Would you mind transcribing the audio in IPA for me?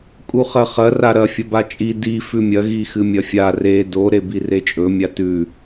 kʼuχɐχɐ raɾɐ fʲɐbat͡ʃʼi di fʉmʲɐ ɣixɨmʲɐfʲa re do ɾebiret͡ʃʼɵ mʲatʉ

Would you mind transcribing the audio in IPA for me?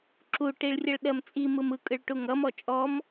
ǁu ʈiɭrʲʌɭɗɜmt͡sʼi mɯmɯ kʼɯɭʈuŋʌ mɔt͡ʃʼɔm

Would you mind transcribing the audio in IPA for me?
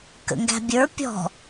kə̰ŋɡæ̤bʲə˞ pʲɔ̤

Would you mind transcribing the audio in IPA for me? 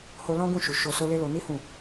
ho˧ lɔ̃˦ɡũ˦˨ʃu˨ ʃo˧so˦le˦ lo˧ni˦ hũ˦˨

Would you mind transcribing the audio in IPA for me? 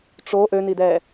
ʈ͡ʂo ʔønidɛː

